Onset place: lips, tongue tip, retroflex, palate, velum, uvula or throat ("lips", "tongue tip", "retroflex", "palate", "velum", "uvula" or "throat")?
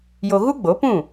palate